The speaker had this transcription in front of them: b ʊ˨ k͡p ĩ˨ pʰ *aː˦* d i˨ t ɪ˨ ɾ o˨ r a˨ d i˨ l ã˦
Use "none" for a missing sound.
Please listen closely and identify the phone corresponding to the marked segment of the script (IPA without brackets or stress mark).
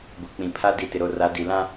a˦